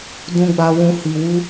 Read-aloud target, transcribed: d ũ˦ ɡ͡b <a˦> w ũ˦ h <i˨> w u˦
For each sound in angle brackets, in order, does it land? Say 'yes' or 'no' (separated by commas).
yes, no